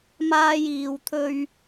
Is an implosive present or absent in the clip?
absent